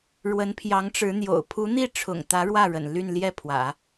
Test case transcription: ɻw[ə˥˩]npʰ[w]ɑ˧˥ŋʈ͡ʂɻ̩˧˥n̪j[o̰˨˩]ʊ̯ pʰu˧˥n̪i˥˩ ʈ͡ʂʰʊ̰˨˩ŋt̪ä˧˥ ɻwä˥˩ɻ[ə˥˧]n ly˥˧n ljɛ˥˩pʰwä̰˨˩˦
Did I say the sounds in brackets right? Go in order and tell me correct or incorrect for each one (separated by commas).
incorrect, incorrect, correct, incorrect